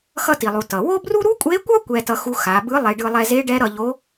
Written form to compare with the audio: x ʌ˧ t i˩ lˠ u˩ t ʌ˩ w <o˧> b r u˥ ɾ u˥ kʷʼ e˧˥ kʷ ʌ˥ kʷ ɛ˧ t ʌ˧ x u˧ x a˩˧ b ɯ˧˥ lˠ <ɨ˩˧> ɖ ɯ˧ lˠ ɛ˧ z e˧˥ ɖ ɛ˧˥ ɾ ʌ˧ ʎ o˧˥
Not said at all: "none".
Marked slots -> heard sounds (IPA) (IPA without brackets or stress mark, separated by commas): o˥, e˩˧